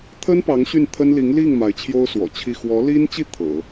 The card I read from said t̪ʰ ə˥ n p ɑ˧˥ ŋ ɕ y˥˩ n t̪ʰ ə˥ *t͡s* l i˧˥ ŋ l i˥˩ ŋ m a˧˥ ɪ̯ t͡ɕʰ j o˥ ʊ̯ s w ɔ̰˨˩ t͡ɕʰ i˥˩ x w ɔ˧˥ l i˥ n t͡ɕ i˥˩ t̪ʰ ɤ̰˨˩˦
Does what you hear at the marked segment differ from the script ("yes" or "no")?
yes